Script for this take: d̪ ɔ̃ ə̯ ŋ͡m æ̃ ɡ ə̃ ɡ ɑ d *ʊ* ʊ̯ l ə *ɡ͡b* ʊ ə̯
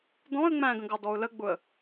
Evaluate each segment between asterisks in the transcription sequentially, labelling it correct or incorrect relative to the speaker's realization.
incorrect: ɔ, correct

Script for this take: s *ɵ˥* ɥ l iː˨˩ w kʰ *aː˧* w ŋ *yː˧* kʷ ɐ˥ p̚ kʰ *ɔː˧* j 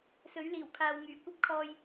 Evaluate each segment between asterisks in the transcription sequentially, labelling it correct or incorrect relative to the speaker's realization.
incorrect: ɵ˨˥, incorrect: aː˨, incorrect: yː˨˩, correct

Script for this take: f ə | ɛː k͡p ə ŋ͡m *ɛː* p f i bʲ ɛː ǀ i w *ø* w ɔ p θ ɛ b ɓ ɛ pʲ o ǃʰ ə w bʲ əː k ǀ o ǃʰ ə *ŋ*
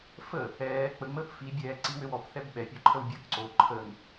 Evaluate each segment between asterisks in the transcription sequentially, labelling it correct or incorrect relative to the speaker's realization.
incorrect: əː, correct, correct

